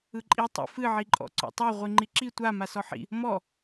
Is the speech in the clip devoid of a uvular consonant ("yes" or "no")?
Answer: no